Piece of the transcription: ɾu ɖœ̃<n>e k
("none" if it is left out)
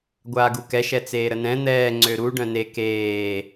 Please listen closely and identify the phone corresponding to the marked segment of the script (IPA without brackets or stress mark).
n